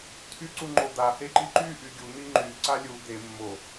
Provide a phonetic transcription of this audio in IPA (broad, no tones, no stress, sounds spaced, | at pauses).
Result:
tʰ y ǀ u ŋ͡ǃ o d̪ a h e ǃ i ǃ y ʔ y ɡʲ u n̪ i ŋ͡ǃ y ǀ a lʲ u d̪ e mː o